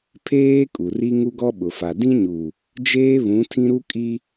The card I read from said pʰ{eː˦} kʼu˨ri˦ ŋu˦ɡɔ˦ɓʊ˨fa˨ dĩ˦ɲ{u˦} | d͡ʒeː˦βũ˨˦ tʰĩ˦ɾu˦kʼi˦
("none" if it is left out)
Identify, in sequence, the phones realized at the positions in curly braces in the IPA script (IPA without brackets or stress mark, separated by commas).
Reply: eː˦, u˨